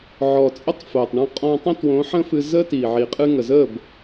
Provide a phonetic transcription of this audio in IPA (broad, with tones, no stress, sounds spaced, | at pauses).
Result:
ʕ ɔ˨ t͡sʼ ə˦ tˤ f o˨ tˤ ɳ ɔ̃˦ qʼ ɔ̃˧ tˤ ə̃˦ t w õ˨˦ ħ ə̃˦ f ɨ˧ z ə˦ t i˨ ʕ i˨ qʼ ɨ˧ ŋ ə˨ z ə˦˨ b